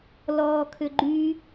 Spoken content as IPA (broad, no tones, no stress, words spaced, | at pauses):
lɔːkʰʏɡ͡ǃy